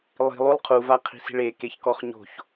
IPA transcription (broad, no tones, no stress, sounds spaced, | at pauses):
lˠ i̤ lˠ u lˠ qʰ u v a qʰ i̤ s i̤ ɭ e k e ç k ɔ χ ɲ o̤ ç